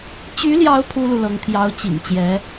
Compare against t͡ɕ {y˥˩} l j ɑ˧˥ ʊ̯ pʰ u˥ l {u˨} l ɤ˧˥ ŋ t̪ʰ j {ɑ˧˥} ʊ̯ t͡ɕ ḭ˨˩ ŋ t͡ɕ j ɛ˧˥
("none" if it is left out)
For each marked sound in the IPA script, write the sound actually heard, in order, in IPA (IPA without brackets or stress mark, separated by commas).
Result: y˧˥, u˨, ɑ˧˥